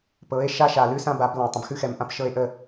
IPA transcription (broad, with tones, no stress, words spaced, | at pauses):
pɤ˨˦e̯ ʃa˦ʃa˨lʉ˦ sã˦ba˨˦blã˨ tˤə̃˨bxʉ˦xɛ˨mʔã˦p ʃɤ˦e̯ʔə˦